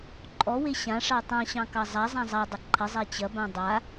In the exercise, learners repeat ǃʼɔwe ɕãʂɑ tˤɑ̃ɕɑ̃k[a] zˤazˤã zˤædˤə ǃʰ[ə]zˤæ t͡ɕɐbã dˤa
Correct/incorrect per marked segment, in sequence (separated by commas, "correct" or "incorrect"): incorrect, correct